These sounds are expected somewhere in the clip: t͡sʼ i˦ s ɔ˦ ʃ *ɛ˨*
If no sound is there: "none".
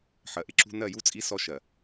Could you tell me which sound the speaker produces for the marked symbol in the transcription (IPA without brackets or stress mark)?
ɜ˨